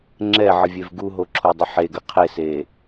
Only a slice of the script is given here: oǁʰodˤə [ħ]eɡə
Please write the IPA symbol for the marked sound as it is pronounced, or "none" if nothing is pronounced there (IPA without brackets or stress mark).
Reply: ħ